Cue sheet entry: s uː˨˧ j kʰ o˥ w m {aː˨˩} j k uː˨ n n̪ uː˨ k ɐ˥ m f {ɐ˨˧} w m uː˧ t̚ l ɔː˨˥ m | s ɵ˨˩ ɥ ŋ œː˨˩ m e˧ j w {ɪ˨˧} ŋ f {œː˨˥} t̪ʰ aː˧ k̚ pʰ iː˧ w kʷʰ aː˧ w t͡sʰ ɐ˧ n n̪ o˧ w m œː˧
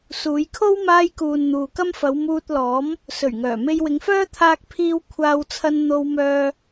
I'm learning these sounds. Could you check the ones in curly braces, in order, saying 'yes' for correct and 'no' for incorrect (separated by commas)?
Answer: no, yes, yes, no